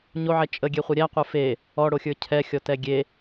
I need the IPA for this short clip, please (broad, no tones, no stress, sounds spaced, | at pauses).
ɲ o ʕ ɛ t͡ʃʼ ə ɡʲ e χʷ ə ɾʲ æ qʷ ə˞ f e | ɔ ɽ o xʲ ə˞ cʰ ɛ xʲ ɔ t ɛ ɡʲ e